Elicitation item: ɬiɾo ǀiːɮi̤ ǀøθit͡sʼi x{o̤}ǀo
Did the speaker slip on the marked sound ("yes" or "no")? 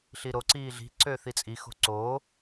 no